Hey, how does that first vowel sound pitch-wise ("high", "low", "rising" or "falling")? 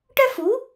high